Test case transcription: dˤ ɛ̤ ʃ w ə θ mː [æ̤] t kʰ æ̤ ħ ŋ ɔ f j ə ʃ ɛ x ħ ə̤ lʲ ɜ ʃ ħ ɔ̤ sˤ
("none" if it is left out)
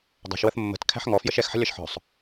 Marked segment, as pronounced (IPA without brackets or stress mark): ə̤